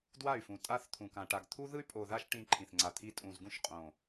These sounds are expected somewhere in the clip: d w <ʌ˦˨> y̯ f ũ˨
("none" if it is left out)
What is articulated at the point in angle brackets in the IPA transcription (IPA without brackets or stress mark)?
a˦˨